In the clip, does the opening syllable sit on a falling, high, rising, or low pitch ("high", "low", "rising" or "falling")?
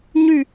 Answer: falling